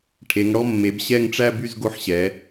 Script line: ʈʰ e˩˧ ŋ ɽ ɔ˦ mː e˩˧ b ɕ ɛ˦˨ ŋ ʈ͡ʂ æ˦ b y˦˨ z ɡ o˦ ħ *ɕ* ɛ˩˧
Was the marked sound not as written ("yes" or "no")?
no